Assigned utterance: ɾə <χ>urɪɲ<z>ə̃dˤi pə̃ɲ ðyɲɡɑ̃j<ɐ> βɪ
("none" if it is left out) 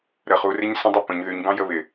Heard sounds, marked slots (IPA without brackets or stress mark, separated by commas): χ, s, ə